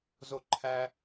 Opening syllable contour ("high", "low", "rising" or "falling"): high